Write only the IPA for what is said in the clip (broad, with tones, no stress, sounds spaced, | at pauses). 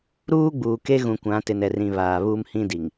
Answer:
ɾ uː˦ ɡ͡b uː˨ k e˦ ɣ ũ˨ kʷ ã˨˦ t ɪ˨ n ɛ˨ r ĩ˨ β aː˨ β uː˦ m h ĩ˦ d i˨ ŋ